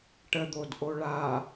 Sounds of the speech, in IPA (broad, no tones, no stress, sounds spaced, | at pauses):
ʈ ə d̪ o d ʔ o ɭ a